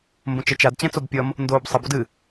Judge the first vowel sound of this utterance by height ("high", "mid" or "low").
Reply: mid